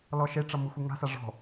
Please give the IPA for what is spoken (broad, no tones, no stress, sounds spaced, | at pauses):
l ɔ ʃ e ʈ͡ʂ ʌ m ɯ xʷ ɯ ŋ a̤ s a ʐ ɔ̤